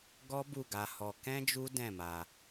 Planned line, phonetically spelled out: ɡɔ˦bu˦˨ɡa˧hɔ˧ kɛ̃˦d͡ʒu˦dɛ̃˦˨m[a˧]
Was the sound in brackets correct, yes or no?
yes